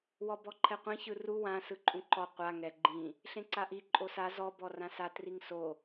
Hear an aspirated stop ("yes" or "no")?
yes